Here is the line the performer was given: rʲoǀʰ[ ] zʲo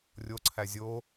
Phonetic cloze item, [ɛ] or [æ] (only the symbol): æ